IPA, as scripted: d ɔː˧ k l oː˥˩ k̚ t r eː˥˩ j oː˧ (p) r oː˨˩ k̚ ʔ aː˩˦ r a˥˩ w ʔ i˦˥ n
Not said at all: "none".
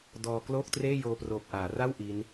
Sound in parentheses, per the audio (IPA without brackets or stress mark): p